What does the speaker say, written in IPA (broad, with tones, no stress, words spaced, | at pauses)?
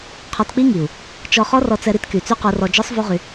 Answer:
qʰɔ˧tk͡pi˦ŋi˨u̯ | t͡ʃɔ˧χɔ˦ rɔ˧t͡sɛ˧ɾi˦tky˨ t͡sy˦qo˧rɔ˧ d͡ʒɔ˦sˤvo˦ʁy˧